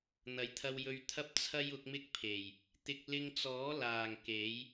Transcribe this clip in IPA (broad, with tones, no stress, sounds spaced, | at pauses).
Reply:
n̪ ɐ˨˥ j t̪ʰ ɐ˧ w j ɵ˧ ɥ t̪ʰ ɐ˥ p̚ t͡sʰ ɐ˥ j ʊ˨˥ k̚ m ɪ˥ k̚ pʰ e˨˩ j | t̪ ɪ˧ k̚ l ɪ˧ ŋ t͡s ɔː˨˥ l aː˨˩ ŋ k e˨˥ j